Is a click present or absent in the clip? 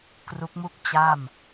absent